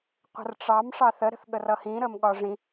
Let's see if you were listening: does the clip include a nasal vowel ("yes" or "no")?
yes